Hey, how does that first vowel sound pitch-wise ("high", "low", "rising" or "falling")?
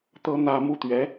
high